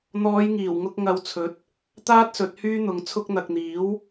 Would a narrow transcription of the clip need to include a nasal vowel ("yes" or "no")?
no